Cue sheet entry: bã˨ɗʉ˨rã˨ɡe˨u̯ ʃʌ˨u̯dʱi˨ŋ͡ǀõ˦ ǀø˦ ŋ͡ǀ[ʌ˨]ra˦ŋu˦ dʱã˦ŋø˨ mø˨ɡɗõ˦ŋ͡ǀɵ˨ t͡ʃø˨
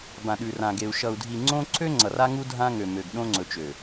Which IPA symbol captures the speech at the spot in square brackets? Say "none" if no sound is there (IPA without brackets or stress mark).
ʌ˨